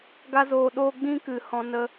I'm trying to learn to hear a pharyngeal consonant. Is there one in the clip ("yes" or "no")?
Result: no